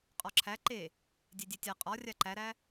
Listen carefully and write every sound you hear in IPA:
qʼɒǁʰæ ǃe | dʲedʲetʲa qʼɒ rʲaǃæɾæ

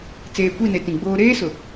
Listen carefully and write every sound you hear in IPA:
t͡seː˨kʷi˦˨ne˨ tĩ˨ɡ͡boː˦ ɾeː˦sʊ˨

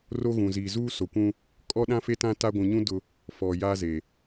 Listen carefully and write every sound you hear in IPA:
ro˦ɣũ˨ ziː˨zuː˦so˨kʷũ˦ | kʼɔ˦ɗã˦fe˦tã˦ ta˦ ɡʷũ˨ɲũ˦ dʊ˦ | fɔ˨ ja˦ze˨

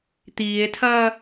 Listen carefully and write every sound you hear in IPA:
t̪iːe̯tʰɐː

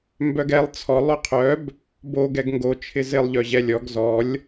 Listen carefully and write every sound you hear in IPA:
mbœɡɛlˠ t͡sʰɔlˠ øqʰœb | bo ɡɛɡŋɡo t͡ʃʰɪzɪlˠ ʎœʑɛlʲɔɡ zɔlʲ

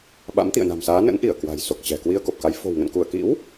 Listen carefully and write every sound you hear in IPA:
ɓa̰˧˥mt̪ḭ˧˨ə̯na̤˨˩msaː˨˦ nə̰˧˥n ʔi˧˩ə̯ kwa̤˨˩jso˨˩k̚ t͡ɕɛ̤˨˩ kwi˧ə̯ko˨˩p̚ka˨˦j fo̤˨˩wŋə̰˧˨nku˧˩ə̯kḭ˧˥w

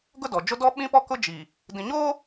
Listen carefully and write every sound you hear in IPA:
ɡʊ˦dɔ˨d͡ʒo˦ dɔ˦ɓĩ˦pɔ˦ kʊ˦d͡ʒi˨ | dĩ˨ɲoː˦

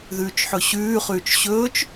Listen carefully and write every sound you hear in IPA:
ðʉːt͡ʃħɵɕʉː χʉːt͡ʃɕɵːt͡ʃ

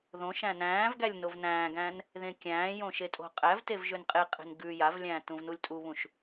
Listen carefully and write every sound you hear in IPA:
ðõʃæ̃ næ̃ːv ɡælʲnovnæ̃ːɡæ̃n | ðẽkʲæ̃ːjõ ʃetʼo̤qʼævtev ʒønqʼeqʼe̤n ɡʉ javlʲæ̃ː tũvnulʲtʼuβũʃ

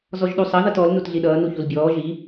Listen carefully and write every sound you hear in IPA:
zɔʒɗusˤʌ ðʌtɔl nutɮiɗʌː nuçulbʲɔː ʒi

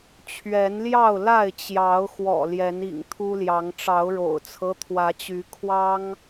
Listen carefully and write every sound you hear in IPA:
t͡ɕʰɥɛ˨˦nljɑ˥˨ʊ̯ la˥˨ɪ̯t͡ɕjɑ˨˦ʊ̯xwɔ̰˨˩ ljɛ˨˦nḭ˨˩ŋt̪ʰu˦ljɑ˨˦ŋ ʈ͡ʂɑ˨˦ʊ̯ɻo̰˨˩ʊ̯t͡sʰɤ˦ t̪ʰwä˨˦t͡ɕy˨˦ kʰwɑ˦ŋ

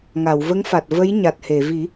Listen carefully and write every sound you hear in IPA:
ŋa˨˩˨wvə˧˥ŋfa˨˩t̚ və˧˥j ɲa˨˩t̚he˨˩˨vi˨˩˦

